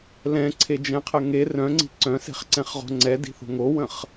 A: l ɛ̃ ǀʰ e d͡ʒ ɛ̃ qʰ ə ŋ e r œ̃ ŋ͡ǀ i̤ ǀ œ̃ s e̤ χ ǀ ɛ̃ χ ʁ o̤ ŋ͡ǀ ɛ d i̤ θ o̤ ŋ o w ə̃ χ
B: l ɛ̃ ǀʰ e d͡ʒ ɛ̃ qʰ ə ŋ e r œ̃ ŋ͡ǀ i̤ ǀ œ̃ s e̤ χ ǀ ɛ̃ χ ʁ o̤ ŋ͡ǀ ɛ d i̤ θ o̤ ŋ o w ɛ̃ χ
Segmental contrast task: A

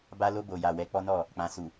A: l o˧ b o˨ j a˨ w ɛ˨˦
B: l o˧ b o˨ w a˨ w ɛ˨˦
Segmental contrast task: A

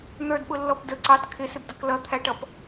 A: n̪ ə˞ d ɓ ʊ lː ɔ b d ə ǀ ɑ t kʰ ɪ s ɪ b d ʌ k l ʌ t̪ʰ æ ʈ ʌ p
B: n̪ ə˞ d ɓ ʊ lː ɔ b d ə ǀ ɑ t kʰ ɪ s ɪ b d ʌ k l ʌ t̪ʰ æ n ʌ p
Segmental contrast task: A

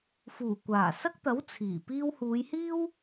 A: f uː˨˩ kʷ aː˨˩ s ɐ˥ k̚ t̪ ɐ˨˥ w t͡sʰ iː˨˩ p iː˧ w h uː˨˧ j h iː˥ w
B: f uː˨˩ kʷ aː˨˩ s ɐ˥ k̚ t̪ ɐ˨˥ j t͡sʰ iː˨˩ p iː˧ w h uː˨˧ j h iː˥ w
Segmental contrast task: A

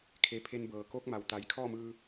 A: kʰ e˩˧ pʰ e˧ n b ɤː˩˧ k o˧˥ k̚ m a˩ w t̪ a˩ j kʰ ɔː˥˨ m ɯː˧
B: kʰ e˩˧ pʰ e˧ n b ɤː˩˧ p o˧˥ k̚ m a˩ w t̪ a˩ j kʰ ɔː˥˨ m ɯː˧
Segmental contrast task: A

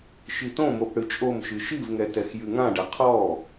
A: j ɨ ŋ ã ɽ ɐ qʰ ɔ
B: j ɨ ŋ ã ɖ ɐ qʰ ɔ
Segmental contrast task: B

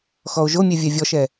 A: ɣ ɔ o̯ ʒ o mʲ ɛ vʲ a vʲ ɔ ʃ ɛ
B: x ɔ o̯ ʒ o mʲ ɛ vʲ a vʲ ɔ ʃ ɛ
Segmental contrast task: B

